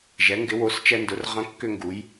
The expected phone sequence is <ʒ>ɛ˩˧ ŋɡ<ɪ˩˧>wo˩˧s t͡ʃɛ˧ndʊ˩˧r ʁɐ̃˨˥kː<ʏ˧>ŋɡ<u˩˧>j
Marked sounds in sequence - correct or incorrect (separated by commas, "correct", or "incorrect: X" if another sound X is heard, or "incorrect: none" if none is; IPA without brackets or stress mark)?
correct, correct, correct, correct